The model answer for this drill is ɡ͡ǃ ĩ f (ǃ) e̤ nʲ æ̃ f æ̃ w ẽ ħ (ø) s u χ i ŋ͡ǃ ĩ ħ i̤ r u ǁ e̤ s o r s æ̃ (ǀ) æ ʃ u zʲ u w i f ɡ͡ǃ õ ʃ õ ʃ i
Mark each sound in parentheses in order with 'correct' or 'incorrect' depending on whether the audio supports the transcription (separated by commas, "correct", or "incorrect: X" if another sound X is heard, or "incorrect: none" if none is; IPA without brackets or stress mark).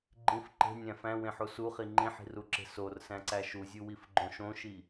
correct, incorrect: u, correct